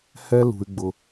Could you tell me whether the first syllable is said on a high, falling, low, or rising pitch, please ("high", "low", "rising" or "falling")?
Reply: high